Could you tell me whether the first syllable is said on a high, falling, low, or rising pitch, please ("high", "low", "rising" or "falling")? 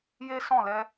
high